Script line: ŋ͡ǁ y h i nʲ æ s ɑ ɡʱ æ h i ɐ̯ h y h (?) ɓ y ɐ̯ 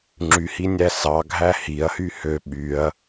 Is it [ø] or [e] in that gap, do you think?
ø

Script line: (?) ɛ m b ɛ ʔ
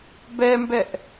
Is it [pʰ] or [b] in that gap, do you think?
b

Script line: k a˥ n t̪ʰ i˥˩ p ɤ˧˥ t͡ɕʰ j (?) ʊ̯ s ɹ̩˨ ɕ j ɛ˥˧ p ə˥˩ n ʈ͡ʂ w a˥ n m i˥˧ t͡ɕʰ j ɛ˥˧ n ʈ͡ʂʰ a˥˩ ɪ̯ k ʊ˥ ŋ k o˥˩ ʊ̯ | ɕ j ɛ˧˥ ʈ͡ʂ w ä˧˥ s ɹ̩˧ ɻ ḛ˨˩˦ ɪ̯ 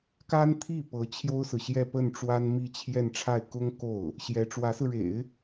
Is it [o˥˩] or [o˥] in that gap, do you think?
o˥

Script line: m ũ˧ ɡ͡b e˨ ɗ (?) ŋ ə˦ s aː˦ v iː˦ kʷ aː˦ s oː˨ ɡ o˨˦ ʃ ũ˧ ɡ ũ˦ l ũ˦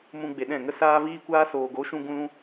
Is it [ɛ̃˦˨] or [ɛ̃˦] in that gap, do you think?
ɛ̃˦˨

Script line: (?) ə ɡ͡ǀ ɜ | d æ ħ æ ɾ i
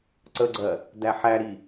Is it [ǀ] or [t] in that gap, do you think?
ǀ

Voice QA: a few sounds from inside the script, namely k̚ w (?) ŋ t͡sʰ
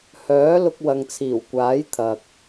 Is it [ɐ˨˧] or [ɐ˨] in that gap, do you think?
ɐ˨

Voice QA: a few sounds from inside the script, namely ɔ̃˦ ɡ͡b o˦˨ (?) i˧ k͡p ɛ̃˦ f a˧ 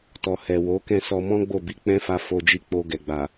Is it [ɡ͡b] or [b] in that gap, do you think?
b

